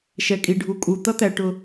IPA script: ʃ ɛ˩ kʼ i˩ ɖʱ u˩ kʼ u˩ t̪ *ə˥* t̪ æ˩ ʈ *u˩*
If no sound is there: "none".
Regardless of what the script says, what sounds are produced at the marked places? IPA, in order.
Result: ʌ˥, ʊ˩

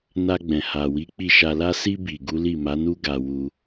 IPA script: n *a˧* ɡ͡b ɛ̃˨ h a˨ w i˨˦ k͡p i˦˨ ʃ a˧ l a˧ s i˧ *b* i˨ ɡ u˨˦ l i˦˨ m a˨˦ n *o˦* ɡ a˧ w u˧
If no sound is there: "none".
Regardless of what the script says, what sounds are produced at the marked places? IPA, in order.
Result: a˧, b, u˦

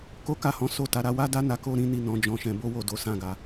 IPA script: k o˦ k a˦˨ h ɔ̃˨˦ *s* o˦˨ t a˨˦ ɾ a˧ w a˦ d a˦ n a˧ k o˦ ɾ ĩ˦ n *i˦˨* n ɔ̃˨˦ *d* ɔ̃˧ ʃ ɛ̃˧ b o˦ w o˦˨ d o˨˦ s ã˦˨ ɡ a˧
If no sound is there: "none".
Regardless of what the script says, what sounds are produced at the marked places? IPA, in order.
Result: s, i˦˨, d͡ʒ

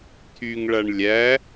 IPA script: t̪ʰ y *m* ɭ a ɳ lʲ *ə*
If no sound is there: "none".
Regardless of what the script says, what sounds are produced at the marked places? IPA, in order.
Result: ŋ, æ

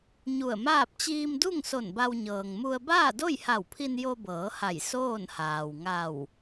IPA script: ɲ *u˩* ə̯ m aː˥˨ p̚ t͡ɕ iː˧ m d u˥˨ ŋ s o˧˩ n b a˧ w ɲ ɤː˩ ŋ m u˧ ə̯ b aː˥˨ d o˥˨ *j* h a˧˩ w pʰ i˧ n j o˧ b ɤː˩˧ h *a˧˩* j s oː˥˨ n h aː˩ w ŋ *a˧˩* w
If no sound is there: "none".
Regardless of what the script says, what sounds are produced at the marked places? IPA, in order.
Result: u˧˩, j, a˧˩, a˧˩

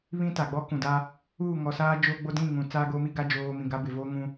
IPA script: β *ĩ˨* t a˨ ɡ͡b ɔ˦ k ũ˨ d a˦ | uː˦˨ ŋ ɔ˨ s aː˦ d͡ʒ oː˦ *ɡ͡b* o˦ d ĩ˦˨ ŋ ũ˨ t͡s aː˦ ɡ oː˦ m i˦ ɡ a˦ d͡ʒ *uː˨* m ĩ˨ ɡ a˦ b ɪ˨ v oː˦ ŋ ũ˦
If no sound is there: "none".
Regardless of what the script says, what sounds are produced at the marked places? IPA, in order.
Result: ĩ˦, ɡ͡b, oː˨

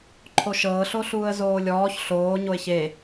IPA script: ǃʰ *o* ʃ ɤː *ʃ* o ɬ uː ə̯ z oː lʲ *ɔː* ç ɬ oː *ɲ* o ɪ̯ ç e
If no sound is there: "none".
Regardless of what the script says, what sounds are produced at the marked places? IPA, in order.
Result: o, ɬ, ɔː, ɲ

